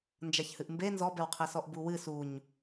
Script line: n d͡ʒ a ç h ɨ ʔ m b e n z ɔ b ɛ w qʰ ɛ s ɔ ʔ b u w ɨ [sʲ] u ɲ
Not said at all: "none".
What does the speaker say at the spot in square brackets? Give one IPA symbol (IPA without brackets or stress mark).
s